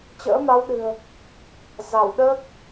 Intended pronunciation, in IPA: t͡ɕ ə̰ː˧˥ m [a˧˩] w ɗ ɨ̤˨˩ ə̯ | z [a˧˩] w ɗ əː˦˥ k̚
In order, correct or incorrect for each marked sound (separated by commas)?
incorrect, correct